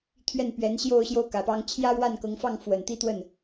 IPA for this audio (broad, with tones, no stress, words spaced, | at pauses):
t̪ʰɥɛ˥˩npɥɛ˧˥nɕjo˥˧ʊ̯ɕjo˥˩ʊ̯ kä˨˩pɑ˥ŋ t͡ɕʰjä˥ ɻwa˥˩nkɤ˧˥ŋfɑ˥˩ŋ fwə˨˩nt̪i˥˧t̪wə˥˩n